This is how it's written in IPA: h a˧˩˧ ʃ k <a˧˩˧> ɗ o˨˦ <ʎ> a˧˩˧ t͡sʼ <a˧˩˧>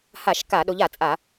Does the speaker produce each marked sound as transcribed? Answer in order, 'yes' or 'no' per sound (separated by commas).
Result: yes, yes, yes